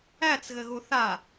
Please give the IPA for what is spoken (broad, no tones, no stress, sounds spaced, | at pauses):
æ t͡s ɣ ɘ ɣ u θ a